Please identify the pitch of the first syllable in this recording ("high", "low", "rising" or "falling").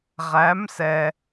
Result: rising